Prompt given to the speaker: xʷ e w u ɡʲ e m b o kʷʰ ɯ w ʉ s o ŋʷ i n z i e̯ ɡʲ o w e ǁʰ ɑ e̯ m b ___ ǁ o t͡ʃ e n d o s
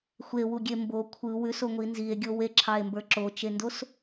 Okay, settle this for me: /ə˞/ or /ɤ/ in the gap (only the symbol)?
ə˞